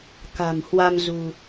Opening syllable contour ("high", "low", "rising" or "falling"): low